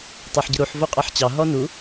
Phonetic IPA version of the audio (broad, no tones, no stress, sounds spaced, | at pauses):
tˤ ɑ ħ ɟ ə ɾ u ħ v o qʼ ɑ ħ t͡ɕ ɑ ɦ ɔ n u